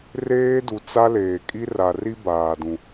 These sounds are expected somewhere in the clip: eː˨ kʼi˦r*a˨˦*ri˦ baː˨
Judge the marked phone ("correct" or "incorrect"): incorrect